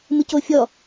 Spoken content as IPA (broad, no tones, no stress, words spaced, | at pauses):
mɨcofʲɔ